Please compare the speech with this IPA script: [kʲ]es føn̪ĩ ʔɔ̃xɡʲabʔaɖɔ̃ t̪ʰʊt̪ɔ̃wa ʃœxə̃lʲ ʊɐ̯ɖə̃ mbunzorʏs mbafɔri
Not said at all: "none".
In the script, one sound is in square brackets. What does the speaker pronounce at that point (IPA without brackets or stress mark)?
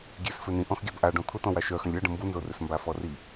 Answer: ɡʲ